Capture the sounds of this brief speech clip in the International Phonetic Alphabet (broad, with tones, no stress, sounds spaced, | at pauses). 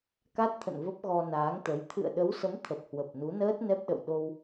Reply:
k a˦˥ t̚ t̪ʰ ə̰˧˨ n v ə˦˥ p̚ ɣ ɔ˧ n aː˨˦ ŋ t̪ ə˨˦ j t̪ʰ ɨ̰˧˨ ə̯ ɗ ə˨˦ w s ə˨˦ m t̪ʰ ə˨˩ p̚ h w ə˨˩ p̚ n u˨˦ n əː˦˥ t̚ n ɛ˦˥ p̚ ɗ ə̰˧˨ w ɗ o˧ w